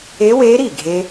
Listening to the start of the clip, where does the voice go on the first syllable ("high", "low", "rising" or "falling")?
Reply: rising